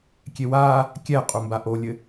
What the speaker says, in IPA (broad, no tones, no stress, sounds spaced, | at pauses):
kʲ e w aː | kʲ ɛ qʼ u m b a ʔ o lʲ ɘ